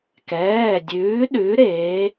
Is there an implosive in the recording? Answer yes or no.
yes